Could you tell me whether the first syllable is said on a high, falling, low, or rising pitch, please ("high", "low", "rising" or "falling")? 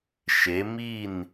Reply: rising